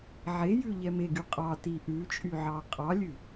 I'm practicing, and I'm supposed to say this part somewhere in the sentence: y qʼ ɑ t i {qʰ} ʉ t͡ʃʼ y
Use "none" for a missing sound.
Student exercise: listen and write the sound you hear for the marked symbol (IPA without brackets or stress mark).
ʔ